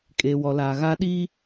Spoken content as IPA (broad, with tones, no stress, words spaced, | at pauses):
kʼeː˨wɔ˨laː˨ ɣa˦ɗi˦